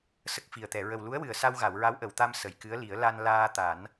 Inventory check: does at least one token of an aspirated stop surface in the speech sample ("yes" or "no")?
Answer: no